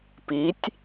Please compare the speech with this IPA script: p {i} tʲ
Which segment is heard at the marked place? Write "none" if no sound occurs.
i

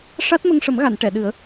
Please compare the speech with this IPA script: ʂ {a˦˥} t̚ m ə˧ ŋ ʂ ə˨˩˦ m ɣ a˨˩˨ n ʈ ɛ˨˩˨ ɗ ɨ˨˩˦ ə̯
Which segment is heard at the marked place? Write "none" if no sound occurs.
a˦˥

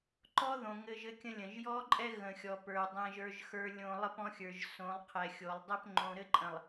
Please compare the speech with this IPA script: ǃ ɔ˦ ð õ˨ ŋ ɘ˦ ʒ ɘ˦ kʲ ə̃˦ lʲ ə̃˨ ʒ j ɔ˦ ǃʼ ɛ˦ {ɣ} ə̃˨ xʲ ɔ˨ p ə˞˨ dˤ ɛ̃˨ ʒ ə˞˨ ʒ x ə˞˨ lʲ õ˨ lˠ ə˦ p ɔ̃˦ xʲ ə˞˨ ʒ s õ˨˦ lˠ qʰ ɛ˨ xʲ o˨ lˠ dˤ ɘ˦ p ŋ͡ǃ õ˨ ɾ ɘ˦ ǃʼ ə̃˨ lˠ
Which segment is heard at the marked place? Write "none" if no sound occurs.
ɣ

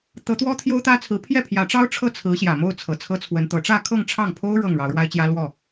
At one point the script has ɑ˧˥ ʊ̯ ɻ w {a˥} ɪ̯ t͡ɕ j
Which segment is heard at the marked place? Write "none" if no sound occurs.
a˥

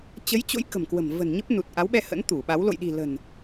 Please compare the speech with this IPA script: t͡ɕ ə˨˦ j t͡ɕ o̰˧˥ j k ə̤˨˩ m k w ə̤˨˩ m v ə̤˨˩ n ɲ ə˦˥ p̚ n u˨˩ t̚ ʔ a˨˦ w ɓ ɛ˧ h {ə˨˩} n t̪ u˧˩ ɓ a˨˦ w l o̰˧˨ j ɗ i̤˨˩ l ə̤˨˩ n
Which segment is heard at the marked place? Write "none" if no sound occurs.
ə̰˧˥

